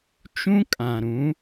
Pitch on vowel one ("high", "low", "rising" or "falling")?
high